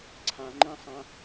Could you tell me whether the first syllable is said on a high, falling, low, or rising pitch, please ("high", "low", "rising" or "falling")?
low